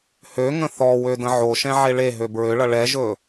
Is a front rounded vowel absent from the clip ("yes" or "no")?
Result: no